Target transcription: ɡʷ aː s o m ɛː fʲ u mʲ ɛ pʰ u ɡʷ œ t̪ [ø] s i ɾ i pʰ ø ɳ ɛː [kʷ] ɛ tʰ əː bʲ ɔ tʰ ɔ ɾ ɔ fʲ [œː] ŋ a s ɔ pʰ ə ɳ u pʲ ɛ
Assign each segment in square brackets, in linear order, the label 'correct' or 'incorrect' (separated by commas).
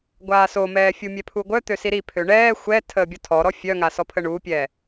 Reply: correct, incorrect, incorrect